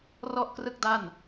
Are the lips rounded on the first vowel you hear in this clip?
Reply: yes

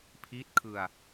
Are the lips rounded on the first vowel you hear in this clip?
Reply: no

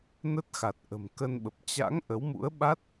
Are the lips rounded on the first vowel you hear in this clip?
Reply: no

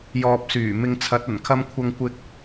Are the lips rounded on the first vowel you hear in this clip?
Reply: yes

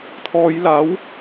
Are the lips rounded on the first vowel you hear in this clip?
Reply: yes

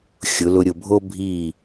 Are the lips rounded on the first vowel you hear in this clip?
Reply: yes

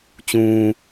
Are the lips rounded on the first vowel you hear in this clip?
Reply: yes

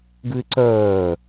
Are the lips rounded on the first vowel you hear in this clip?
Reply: yes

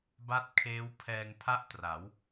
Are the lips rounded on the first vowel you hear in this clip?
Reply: no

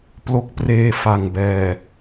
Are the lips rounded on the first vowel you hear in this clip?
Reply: yes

